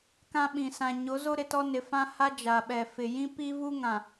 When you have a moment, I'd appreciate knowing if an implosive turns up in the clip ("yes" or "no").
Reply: yes